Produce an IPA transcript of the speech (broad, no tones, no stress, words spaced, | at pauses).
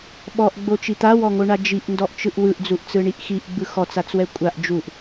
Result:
ɓɔʔɡ͡bot͡ʃi t̪awɔŋoɳa d͡ʒiʔndɔʔt͡ʃɯʔ wɯʔd͡zuʔt͡sɯɳiʔ xiʔɡ͡bɯ xɔt͡sat͡swɛ kʷʼaʔ d͡ʒuʔ